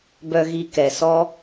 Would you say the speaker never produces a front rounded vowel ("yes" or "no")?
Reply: no